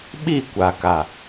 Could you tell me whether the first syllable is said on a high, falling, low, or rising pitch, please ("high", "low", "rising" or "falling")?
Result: falling